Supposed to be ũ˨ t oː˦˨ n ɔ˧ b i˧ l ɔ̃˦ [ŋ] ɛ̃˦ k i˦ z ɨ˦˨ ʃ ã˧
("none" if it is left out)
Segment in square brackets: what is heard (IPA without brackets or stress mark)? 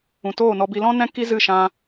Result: n